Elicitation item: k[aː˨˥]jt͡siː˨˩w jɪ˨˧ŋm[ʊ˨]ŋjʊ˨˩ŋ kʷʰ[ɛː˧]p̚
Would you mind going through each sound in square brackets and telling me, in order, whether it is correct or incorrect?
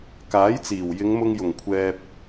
correct, incorrect, correct

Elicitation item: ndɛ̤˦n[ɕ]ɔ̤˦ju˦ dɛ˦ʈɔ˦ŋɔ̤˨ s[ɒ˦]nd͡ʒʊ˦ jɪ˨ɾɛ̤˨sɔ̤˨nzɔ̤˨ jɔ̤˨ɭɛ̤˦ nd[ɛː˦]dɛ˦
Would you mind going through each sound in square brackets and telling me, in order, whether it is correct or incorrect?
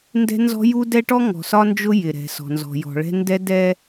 incorrect, correct, incorrect

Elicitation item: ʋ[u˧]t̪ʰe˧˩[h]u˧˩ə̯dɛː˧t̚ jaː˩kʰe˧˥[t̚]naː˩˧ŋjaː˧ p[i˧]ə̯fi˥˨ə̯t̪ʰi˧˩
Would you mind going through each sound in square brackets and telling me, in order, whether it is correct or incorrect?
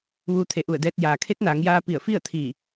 incorrect, incorrect, correct, incorrect

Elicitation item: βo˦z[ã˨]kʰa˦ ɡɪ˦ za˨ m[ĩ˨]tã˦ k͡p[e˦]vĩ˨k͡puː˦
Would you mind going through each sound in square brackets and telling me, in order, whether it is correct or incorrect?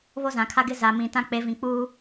correct, correct, incorrect

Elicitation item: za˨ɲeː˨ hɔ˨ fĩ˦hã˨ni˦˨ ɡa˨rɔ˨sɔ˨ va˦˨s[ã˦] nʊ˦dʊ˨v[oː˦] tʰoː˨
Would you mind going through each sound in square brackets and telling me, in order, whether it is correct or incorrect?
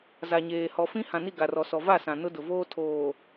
incorrect, correct

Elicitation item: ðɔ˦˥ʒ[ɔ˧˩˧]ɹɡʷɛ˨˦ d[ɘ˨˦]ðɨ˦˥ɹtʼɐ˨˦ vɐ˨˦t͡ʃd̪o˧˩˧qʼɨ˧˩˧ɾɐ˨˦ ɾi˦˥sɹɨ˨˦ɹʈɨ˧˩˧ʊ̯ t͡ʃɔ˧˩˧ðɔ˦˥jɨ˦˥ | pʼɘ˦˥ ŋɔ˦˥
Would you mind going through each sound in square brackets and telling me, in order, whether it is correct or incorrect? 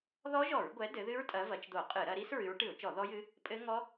correct, correct

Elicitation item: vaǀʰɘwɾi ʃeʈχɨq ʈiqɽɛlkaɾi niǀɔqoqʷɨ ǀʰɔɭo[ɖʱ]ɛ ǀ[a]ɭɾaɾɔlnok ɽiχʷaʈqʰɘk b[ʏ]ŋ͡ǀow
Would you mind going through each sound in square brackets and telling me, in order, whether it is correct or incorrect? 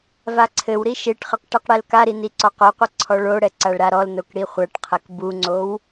incorrect, correct, incorrect

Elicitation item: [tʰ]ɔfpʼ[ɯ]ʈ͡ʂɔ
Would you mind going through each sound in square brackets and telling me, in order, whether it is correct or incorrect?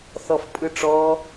incorrect, correct

